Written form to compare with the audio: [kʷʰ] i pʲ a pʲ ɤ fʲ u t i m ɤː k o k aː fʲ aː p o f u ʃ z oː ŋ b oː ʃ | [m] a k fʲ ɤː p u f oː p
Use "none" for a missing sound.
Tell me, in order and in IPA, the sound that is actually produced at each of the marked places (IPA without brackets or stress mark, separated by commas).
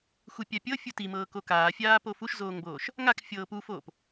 xʷ, ŋ